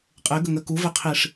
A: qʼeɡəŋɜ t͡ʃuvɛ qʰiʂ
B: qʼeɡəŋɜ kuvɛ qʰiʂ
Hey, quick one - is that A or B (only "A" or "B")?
B